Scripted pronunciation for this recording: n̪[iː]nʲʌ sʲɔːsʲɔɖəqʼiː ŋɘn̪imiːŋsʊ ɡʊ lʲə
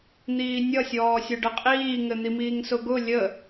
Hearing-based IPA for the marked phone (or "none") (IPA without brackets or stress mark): iː